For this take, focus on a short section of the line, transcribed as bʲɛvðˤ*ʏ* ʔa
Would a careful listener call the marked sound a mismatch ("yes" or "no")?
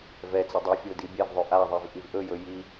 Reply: no